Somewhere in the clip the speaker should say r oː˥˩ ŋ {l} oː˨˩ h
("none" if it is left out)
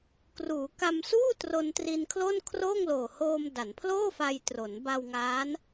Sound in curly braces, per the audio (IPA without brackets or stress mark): l